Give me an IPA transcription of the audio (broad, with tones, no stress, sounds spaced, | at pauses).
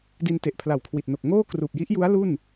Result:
d i˧ n t e˨˩ ʔ pʰ l a˨˩ w kʰ w i˨˩ t̚ n o˨˩ k̚ ŋ oː˥˩ k r uː˨˩ p̚ j i˦˥ ʔ j u˦˥ a̯ l u˥˩ n